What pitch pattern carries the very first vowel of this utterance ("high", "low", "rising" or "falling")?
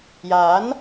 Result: rising